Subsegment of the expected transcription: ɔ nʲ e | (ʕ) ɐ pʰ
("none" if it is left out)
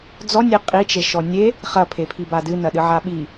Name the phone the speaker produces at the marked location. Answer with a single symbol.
χ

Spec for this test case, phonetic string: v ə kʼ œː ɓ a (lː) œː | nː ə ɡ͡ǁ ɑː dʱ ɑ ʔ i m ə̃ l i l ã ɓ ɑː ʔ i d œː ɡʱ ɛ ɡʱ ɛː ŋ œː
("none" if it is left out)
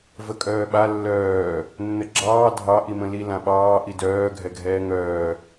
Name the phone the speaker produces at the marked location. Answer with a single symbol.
lː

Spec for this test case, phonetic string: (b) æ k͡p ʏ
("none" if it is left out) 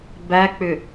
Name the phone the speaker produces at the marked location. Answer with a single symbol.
b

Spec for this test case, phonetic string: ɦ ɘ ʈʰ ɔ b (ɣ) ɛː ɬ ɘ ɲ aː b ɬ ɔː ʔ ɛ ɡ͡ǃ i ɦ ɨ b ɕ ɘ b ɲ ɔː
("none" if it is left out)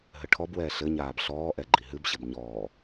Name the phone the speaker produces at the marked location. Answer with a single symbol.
w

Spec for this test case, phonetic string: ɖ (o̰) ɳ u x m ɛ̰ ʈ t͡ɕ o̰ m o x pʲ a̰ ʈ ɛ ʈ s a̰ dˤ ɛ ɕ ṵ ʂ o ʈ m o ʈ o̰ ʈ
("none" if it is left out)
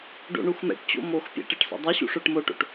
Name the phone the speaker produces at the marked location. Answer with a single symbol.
o̰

